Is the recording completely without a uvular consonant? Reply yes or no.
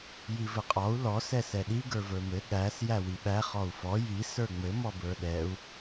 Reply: no